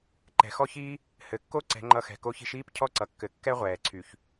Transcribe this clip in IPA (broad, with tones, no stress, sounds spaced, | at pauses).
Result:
ǃ ɛ̤˩ x ɔ˥ ç iː˥ | h ɘ˩ kː o˥ ǀ ɛ̤˩˥ ŋ͡ǃ ʌ˧ x ɛ̤˩ k o˧ ç i̤˧ ʃ iː˥ p cʰ ɔ˥ ǀ ʌ˩ kː ɘ˩˥ kː ɛ˥ ʁʷ ɛː˩ ǀʰ y˩ ç